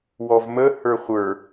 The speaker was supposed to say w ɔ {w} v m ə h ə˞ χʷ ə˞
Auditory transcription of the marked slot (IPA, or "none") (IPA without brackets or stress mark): none